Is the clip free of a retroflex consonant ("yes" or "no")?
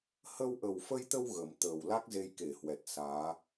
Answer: yes